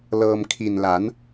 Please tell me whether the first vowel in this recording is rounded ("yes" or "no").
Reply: no